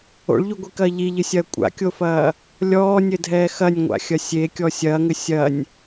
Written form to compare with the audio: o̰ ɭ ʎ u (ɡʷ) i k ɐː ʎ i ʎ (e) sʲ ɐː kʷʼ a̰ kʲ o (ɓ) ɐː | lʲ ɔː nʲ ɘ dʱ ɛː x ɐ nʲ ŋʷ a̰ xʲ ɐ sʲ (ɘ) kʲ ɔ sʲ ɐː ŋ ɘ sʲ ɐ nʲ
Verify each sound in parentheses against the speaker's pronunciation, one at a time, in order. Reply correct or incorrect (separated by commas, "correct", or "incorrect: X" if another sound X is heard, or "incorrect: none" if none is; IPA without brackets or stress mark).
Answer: correct, incorrect: ɨ, incorrect: f, incorrect: e